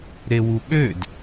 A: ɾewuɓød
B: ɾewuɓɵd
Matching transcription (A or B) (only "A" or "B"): A